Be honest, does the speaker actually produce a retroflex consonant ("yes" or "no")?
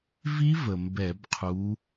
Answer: no